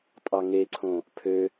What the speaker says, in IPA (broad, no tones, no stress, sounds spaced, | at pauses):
tʼ ɑ ŋ e ǀʰ õ | pʰ ø